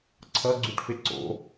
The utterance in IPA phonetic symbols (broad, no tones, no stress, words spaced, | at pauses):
ǀʰʌɡ͡ǀuʈfe ǀo̰